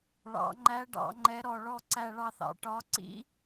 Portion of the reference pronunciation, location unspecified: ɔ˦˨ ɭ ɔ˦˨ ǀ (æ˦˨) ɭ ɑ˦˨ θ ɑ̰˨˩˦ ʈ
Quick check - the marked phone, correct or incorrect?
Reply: correct